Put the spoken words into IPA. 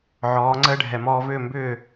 ʕ ɔː˩˥ ŋ͡ǀ əː˥ ɖʱ ɛ˩ m ɔː˧ v ʏː˥˩ m b ʏː˥˩

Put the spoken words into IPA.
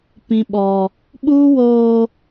p ĩ˦ ɓ ɔ˦ | ɓ uː˦ w oː˦

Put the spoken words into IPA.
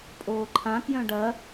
pʼ oː ǃʰ ã k j œ̃ ɖ ɐ

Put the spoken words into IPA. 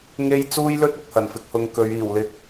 ŋ e˥ j t͡s uː˥ j l ɵ˥ t̚ ɪ˨ k̚ h ɐ˨˩ n f ɪ˧ k̚ h ʊ˨ ŋ k ɵ˨˧ ɥ iː˨˩ w l ɪ˧ k̚

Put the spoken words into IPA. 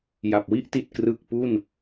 j a˨˩ p̚ w i˥˩ ʔ t i˨˩ t̚ k r ɯ˨˩ k̚ p u˥˩ n

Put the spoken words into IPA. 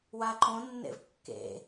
w a ǃ õ nː ḛ v kː ḛ

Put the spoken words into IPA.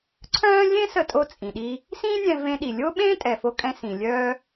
ǀʰ œ̃ː˥ lʲ ẽ˥ s ə˧ tʼ o˧ t͡sʼ ĩ˩ ɗ i˧ | s ĩː˥ nʲ ɛ̃˧ v ẽ˧ ɗ i˩ lʲ o˥ ɓ ẽː˥ tʼ ɛ˩ f o˧ kʼ ɛ̃˧ s ĩ˩ lʲ œː˧

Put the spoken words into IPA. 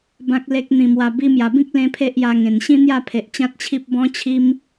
b ã˨ k̚ l e˨ k̚ n̪ ĩ˨˩ m w a˨˩ b i˧ m j a˨˩ b ĩ˦ k̚ l ẽ˦ pʰ e˦ ʔ j a˧ ŋ ẽ˨˩ n ɕ ĩ˦ n̪ j a˥˧ pʰ e˨ ʔ t͡ɕ ã˦ t̚ t͡ɕʰ i˦ p̚ b ɔ̃˦ t͡ɕʰ i˦ m

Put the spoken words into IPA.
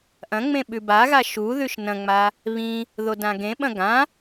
ʔ ɐ̃ ŋ͡m ẽ ɓ ʉ b a ɣ a ʃ u ð ʉ ʃ n ɐ̃ ŋ͡m a | β ĩ | ð o d ã ɡ ẽ ɓ ɐ̃ ɡ ã

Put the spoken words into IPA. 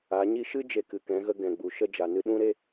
a˨˦ ɲ i˧ ʃ ɨ˦ d͡ʒ e˧ k ɨ˨ k ɛ̃˨˦ ɣ ə˧ ɡ ɛ̃˨ ɡ͡b u˨ ʃ ə˦ d͡ʒ a˨ n ɨ˧ ɗ ũ˦ ɾ e˦

